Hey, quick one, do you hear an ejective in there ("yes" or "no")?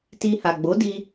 no